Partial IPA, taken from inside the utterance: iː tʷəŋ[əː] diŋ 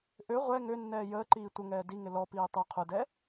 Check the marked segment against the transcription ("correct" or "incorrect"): incorrect